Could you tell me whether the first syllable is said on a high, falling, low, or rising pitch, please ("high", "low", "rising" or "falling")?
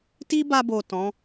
high